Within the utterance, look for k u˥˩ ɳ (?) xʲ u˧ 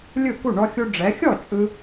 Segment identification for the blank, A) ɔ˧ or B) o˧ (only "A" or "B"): A